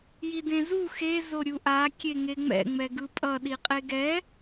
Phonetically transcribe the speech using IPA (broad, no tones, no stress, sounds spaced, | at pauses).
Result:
j i d ẽ z u x e z o ɾʲ u ʔ a kʲ e ŋ e ŋ͡m ɛ̰ ŋ͡m ɛ ɡ ɯ pʼ ʌ ɗ i qʼ e ɡ ɛ